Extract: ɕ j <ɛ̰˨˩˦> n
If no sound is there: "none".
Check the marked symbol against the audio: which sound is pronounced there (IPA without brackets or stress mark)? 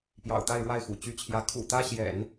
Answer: ɛ̰˨˩˦